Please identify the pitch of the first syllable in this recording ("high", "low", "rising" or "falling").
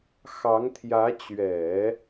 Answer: rising